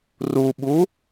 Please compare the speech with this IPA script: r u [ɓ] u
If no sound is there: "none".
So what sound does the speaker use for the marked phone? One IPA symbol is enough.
ɓ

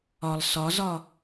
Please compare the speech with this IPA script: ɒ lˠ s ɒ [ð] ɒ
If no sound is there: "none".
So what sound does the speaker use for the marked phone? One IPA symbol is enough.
z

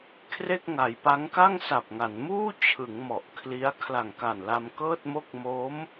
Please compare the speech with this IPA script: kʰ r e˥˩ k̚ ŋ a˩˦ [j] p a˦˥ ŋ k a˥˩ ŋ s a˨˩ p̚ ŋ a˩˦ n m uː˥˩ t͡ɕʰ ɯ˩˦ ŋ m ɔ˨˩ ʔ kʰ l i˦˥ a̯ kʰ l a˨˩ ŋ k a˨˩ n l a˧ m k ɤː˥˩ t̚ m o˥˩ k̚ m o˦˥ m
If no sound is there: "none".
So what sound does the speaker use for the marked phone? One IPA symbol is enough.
j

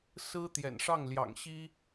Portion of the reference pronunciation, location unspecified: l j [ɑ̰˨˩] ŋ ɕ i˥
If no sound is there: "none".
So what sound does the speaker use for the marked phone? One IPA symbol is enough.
ɑ̰˨˩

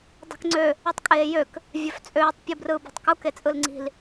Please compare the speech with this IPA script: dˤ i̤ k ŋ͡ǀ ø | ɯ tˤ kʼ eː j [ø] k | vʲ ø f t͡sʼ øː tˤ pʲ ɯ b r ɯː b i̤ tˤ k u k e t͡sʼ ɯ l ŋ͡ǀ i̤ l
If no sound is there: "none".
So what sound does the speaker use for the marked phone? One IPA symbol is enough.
ø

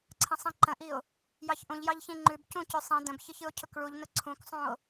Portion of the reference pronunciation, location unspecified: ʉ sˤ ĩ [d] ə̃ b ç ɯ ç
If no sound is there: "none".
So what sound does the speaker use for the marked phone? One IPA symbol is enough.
d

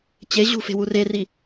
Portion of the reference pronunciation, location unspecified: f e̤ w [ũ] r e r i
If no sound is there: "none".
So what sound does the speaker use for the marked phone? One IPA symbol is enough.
u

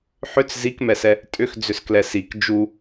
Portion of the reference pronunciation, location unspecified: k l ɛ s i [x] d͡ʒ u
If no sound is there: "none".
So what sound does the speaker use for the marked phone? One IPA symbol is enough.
k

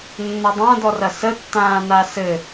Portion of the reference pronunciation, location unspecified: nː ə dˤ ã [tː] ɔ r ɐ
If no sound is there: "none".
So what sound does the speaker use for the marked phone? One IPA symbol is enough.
d̪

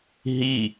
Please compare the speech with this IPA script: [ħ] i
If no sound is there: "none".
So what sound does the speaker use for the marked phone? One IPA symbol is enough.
ɦ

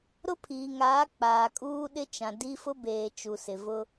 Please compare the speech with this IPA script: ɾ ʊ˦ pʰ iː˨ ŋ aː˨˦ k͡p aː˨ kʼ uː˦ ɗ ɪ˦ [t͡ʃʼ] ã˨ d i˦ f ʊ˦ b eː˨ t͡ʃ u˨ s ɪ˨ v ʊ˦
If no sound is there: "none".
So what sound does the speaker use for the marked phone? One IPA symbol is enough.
t͡ʃ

